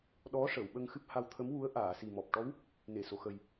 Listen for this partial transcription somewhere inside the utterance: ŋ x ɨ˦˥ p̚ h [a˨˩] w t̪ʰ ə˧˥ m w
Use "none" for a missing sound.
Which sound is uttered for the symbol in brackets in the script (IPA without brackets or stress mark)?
a˧